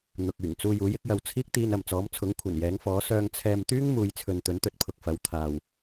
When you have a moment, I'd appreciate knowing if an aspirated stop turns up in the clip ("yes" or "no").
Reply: yes